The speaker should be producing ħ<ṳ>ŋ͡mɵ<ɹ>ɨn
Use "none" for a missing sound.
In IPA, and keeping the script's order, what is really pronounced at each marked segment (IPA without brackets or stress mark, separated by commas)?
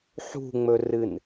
ṳ, r